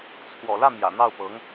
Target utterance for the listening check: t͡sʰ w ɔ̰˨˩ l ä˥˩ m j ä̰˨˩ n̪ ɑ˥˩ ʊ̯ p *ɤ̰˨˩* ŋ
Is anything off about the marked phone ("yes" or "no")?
yes